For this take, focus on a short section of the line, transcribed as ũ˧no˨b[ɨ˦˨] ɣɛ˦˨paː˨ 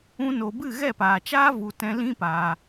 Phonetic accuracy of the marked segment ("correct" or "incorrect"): correct